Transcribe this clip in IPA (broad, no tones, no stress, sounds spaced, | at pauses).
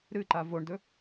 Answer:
ɾ ɨ ǃ a v o ɳ d ɵ